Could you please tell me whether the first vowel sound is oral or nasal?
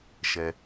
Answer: oral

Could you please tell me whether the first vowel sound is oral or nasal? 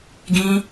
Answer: nasal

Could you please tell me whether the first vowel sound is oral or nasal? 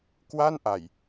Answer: oral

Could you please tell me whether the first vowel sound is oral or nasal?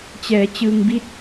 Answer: oral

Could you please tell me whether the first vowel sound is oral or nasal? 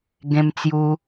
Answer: nasal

